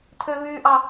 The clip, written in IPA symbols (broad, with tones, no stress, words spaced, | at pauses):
tʰø˦βyː˦ʔɑ˦